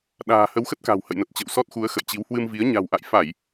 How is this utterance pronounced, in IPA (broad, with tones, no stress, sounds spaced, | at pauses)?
ɗ a̤ː˨˩ h ə˨˦ w x ə˦˥ t̚ k a̤˨˩ w h ə̰˧˨ j n ə˨˩ t̚ t͡ɕ ə̰˧˨ w s ɔ˦˥ t̚ x u˨˦ ə̯ x ə̰˧˨ j t͡ɕ i˨˦ w h w ɨ˧ m v i˨˦ ə̯ ɲ a̤˨˩ w ʔ a̰˧˨ j f a˧˩˨ j